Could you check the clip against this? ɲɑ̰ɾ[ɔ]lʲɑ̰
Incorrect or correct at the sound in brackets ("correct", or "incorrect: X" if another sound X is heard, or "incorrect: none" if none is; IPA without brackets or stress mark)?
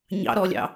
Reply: correct